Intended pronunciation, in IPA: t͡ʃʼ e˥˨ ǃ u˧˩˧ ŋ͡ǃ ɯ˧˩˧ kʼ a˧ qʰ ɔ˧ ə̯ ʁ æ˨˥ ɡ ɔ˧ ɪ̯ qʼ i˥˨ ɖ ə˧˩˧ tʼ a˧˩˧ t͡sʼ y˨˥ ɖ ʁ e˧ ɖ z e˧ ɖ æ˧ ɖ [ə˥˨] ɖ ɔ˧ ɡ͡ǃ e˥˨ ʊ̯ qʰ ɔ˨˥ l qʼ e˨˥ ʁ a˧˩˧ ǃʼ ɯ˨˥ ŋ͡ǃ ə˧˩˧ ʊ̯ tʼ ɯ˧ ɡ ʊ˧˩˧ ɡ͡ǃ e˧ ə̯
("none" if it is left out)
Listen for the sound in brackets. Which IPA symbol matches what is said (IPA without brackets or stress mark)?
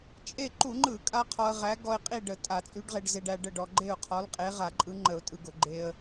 ə˥˨